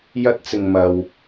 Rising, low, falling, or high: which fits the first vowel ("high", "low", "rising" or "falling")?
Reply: high